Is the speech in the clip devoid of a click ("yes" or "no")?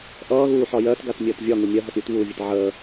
yes